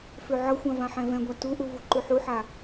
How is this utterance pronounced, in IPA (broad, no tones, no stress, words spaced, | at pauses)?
føʕʌxʷã vãħɛ̃vɛ̃ɡʷa tuʔu vuǃʉħuħa